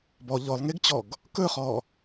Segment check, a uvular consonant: present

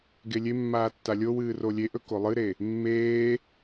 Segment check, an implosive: absent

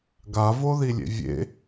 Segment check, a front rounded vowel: absent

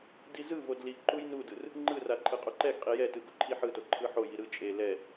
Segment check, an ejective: present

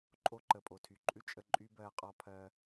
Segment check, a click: present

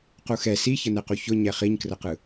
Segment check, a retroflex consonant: absent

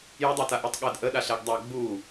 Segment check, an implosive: present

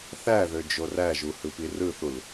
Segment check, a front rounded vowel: present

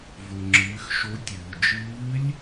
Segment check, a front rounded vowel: absent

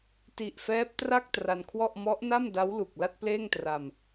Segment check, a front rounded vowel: absent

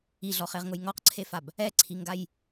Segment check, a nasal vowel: absent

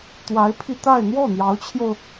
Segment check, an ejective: absent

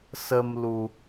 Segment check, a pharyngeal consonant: absent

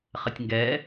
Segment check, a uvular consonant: present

